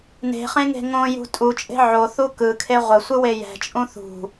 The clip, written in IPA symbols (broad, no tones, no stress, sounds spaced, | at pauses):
n e̤ χ ẽ ŋ e̤ ŋ õ j ṳ tʼ u t͡ʃʼ e̤ ʕ o θ u k ɯ kʰ e ʁʷ ə sʷ ɯ w e j ɛ̤ t͡ʃʼ ũ θ ṳ